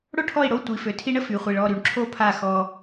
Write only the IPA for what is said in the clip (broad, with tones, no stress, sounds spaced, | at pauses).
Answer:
ɽ o˦ ʈʰ ɔ˦˨ i̯ ɽ o˦˨ tʷ i˨ f ø˨ tʰ i˧ ɳ ə˦ f y˨ χʷ i˨ ɭ ɔ˦˨ ɾ y˨ ɳ ǁʰ o˦ pʰ a˦˨ x ɔ˧